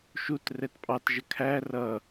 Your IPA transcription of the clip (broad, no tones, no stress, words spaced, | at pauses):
ʃut rɛtpʼɑtʒə kʰæ rʌ